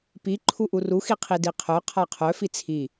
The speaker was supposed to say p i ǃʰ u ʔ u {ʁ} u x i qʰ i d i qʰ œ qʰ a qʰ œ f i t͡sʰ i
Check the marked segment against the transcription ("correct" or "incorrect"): incorrect